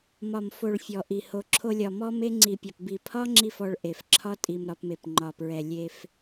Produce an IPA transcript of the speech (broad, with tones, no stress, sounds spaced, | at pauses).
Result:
m ɒ˨ m f o˨ ɭ fʲ ɔ˨ ʔ i˨ h o˧ ǁʰ o˧ lʲ ɒ˨ m ɔ˦ m e˦ ŋ͡ǀ i˨ pʲ ɒ˨ p b i˨ pʰ ɒ˦ ŋ͡ǁ i˦ f ɔ˧ ɭ ʔ e˨ f ǁʰ ɒ˦ tʼ i˧ m ɾ ɒ˧ p m e˨ p ŋ͡ǃ ɒ˨ p ɹ ɛ˨ lʲ e˧ f